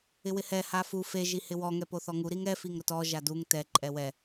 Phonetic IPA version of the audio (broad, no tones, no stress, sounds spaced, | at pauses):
ɪ w ɪ h ɛ h a f u f e ʒ i h ɪ w ɔ ŋ ɛ p o θ ɔ ŋ u ɾ i ŋ ɛ f i ŋ ɾ ʊ t ɔ ʒ a d u ŋ t ɛ ǃʼ ɛ w ɛ